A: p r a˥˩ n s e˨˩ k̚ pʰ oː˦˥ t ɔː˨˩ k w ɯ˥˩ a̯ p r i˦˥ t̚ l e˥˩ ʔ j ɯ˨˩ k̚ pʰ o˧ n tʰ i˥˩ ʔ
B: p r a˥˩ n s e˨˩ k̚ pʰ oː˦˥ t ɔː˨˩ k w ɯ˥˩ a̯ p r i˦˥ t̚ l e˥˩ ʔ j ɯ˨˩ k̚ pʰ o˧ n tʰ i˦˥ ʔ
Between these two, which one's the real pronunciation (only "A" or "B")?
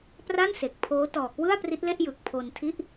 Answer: A